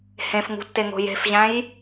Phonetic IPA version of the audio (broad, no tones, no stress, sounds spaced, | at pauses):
h ẽ f ŋ ṳ tː e ŋ o̤ j e̤ f ʑ æ̃ j